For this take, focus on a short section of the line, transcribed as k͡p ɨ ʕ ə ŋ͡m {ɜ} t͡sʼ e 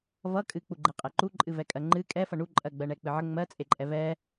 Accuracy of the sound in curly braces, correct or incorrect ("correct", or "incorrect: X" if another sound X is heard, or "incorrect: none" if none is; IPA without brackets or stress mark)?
correct